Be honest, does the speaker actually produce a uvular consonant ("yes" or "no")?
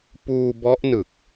no